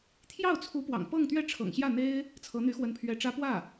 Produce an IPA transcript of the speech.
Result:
t̪ʰ j ɑ˥˩ ʊ̯ t͡sʰ u˧˥ p w ɑ̰˨˩ ŋ p ɤ˥˧ ŋ t̪ ɥ ɛ˥˩ ʈ͡ʂʰ ɤ̰˨˩ ŋ ɕ j ä˥˩ n̪ e˥ ɪ̯ | t͡sʰ ɤ˧˥ n̪ y˧˥ x w ə˧˥ n pʰ ɥ ɛ˧˥ ʈ͡ʂ ä˥ p w ä˥˩

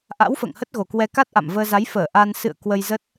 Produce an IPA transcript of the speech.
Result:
ʔ a̰˧˥ w f ə̰ː˧˨ ŋ h ə˦˥ t̚ ɣ o˨˩ k w ɛ˧ k a˦˥ t̚ ʔ a̰˧˨ m v əː˧ z a˨˦ j f əː˧˩ ʔ a˧ n s ɨ̰˧˨ ə̯ k w ə˧ j z ə˦˥ t̚

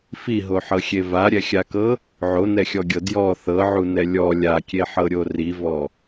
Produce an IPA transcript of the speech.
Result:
f i ɦ o ħ ɤ xʲ e v a ɾʲ ɛ xʲ a k ɤ | ʕ o n ɛ xʲ ɔ ɡʲ ɤ d j ɔ θ ɤ ʕ u n ɛ lʲ ɔ lʲ a kʲ e ħ ɤ ɾʲ o r i v ɔ

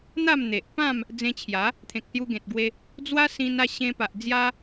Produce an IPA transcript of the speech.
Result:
n̪ a˥˧ m n̪ e˨ ʔ p ã˥˧ m | d͡z ẽ˧ t͡ɕʰ j a˨˦ | t̪ʰ ẽ˨ k̚ s j u˧ ɡ ẽ˨ t̚ ɡ w e˧ | d͡z w a˦ s ĩ˧ n a˥˧ ɕ ẽ˧ p a˨ ʔ d͡z j a˦

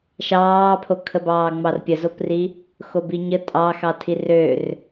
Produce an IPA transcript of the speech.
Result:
ʃ ɑː pʰ o kʰ ə b ɑː ŋ͡m ɑ r pʲ ə z o p r i | x o b i ɲ ə tʼ ɑ x ɑ tʰ i r ø r

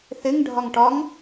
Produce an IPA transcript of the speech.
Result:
θ ɪ ŋ ɖʱ ɒ ŋ ʈ ɒ ŋ

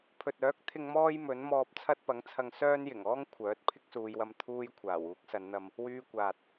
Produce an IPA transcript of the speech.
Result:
pʰ ɵ˨ t̚ œː˨˥ k̚ t̪ʰ ɪ˧ ŋ m ɔː˥ j m ɵ˨˥ n m ɔː˧ p̚ t͡sʰ ɐ˥ t̚ p ɐ˨˥ ŋ t͡sʰ ɐ˧ ŋ s œː˥ n j ɪ˨˩ ŋ ɔː˥ ŋ kʷʰ œː˨˥ t̚ pʰ ɪ˥ k̚ s uː˨˧ j w ɐ˧ m t̪ʰ uː˧ j kʷʰ aː˨˩ w uː˨˥ k̚ s ɐ˨˧ n n̪ ɐ˧ m | w yː˧ kʷ aː˨ t̚

